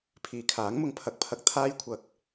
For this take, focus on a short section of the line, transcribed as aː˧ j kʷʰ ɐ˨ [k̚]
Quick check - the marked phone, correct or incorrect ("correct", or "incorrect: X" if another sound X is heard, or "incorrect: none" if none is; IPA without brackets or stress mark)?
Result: correct